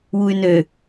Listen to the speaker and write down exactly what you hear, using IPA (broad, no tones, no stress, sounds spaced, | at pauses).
w u y̯ n ø